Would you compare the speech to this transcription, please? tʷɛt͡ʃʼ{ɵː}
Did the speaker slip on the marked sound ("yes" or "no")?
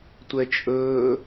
no